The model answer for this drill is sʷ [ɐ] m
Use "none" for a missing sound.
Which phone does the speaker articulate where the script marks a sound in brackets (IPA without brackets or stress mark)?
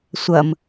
ɐ